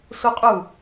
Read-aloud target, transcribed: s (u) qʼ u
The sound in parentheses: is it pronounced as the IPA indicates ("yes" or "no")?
yes